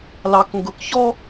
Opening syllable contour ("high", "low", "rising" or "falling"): low